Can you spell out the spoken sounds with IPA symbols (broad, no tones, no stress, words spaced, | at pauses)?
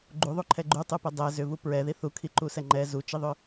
ɡ͡ǃuðˤuǃʰɛ ɡ͡ǃutˤupɛ dˤɛ zʏvu pɹɛði θukʰiǃusɛ ŋ͡ǃɛ zut͡ʃiðˤʏ